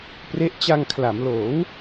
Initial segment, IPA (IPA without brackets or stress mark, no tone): p